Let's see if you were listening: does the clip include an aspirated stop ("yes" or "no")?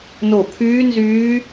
yes